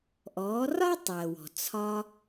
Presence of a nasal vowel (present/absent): absent